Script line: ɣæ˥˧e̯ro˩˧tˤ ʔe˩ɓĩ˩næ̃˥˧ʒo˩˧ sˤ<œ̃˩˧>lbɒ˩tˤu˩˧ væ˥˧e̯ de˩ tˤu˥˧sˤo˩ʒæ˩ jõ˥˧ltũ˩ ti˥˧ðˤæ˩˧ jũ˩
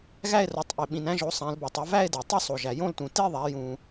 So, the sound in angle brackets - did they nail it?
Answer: no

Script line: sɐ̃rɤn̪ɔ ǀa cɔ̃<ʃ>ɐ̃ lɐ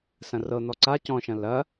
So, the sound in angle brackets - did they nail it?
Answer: yes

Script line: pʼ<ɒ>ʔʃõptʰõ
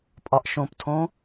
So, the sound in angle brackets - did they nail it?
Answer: yes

